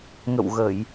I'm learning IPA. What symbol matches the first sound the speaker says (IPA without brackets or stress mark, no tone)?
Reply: ŋ